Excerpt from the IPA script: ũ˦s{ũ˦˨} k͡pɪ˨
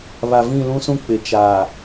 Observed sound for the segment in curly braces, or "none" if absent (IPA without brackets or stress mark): ũ˦